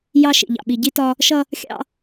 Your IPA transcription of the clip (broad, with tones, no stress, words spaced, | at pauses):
jɑ˦ʃḭ˨ʎɑ̰˨ ɓi˨ɟi˦tɒ˦ | ʃʌ˦ | xʲɑ̰˦